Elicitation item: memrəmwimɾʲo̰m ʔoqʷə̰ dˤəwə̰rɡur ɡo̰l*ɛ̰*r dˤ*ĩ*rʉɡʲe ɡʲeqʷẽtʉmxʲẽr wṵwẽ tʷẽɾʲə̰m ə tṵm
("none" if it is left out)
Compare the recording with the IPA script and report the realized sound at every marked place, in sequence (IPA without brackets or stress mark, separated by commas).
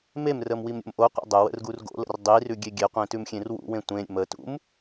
ə̰, i